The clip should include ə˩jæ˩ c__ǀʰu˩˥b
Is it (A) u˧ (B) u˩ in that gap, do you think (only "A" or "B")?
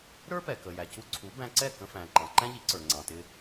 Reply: A